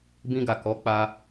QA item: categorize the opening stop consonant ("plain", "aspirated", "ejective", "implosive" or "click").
plain